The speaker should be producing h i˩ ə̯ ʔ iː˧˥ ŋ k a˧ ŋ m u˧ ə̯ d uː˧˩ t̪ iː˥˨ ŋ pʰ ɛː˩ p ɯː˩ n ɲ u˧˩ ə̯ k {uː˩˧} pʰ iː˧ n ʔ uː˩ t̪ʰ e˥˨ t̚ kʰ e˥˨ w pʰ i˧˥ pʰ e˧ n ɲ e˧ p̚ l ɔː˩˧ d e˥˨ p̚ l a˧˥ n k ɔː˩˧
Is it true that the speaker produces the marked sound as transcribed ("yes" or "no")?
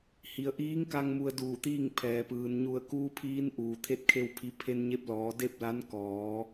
no